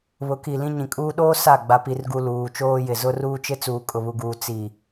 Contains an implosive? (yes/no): yes